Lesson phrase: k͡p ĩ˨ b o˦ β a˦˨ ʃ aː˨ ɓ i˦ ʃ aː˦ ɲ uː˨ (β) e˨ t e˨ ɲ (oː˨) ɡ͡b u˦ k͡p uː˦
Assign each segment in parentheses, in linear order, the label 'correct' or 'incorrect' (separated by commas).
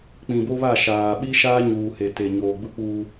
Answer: incorrect, correct